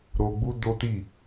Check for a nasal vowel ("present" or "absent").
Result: absent